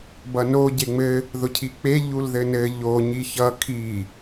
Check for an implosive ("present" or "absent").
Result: absent